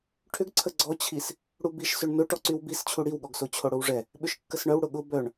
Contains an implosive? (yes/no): yes